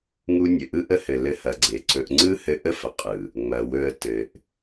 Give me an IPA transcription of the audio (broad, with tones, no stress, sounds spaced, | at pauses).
ŋ u˦ nʲ ɘ˨ ʔ ɯ˦ ʔ ə˦ h ɘ˨ l ɘ˧ h ɐ˨ ɡ͡ǀ e˨ ǀ ɵ˧ ʔ ŋ͡ǀ ɯ˦ h ɘ˧ ʔ ə˦˨ f ə˨ qʼ ɯ˨ | ŋ͡m ɐ˨ w ɵ˧ ə̯ t ɘ˨ ʔ